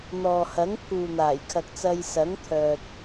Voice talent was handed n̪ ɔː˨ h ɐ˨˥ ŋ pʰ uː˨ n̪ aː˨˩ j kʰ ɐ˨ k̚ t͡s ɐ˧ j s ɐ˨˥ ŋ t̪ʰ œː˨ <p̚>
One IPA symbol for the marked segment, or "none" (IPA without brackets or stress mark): t̚